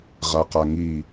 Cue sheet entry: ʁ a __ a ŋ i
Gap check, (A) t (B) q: B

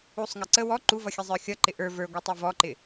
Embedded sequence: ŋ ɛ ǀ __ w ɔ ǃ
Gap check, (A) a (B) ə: B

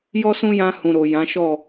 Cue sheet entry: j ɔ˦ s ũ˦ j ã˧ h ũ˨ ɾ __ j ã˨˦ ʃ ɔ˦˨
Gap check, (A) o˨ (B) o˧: A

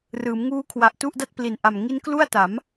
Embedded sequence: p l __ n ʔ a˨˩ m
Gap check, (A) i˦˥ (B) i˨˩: B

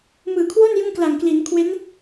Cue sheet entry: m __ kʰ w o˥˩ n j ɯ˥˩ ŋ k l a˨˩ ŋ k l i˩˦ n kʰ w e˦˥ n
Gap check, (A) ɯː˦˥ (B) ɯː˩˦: B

